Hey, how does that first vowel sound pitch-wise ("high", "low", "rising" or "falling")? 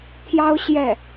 high